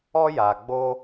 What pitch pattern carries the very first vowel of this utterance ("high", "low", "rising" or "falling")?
high